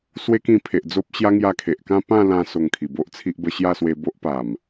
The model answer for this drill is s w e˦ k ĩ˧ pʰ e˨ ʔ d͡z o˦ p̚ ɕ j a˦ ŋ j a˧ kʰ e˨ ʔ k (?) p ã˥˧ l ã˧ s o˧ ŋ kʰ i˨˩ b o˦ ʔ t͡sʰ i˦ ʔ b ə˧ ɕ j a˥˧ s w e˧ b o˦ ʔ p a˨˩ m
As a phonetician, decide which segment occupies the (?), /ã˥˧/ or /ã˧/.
ã˥˧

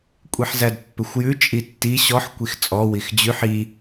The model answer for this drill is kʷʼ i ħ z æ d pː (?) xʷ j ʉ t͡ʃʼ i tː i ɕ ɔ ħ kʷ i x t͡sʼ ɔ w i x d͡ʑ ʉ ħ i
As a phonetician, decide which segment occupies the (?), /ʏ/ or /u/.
ʏ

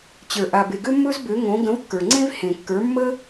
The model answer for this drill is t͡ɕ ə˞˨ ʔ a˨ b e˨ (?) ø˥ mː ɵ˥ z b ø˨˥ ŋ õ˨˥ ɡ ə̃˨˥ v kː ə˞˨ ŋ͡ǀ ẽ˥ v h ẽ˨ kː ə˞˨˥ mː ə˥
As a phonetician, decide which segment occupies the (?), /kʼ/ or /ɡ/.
ɡ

